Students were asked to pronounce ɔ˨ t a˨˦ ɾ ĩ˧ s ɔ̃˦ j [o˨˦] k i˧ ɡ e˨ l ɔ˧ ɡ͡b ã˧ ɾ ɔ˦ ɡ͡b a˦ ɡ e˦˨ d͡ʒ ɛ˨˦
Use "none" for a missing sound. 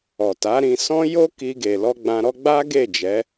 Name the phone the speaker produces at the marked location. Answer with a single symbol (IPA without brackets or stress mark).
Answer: o˦